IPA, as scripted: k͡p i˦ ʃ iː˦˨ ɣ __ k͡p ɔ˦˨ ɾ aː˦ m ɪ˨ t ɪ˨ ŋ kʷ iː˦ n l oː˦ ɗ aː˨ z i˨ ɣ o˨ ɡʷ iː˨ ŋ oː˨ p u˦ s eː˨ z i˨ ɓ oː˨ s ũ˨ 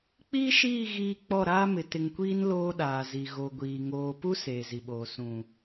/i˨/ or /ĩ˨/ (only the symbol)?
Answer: i˨